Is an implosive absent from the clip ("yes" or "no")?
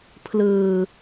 yes